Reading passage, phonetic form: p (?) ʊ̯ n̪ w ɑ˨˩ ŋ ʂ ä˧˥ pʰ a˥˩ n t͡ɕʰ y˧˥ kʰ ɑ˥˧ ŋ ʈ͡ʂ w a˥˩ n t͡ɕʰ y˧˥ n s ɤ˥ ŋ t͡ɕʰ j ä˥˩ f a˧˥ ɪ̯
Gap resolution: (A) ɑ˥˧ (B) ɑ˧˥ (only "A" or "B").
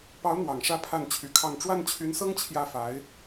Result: B